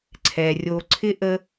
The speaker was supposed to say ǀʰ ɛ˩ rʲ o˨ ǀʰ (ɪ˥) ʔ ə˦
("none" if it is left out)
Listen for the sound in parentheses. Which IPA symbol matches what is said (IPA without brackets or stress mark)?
ɪ˥